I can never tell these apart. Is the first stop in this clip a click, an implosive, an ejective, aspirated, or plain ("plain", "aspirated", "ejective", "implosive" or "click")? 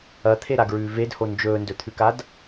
aspirated